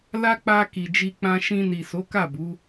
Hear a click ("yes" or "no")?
no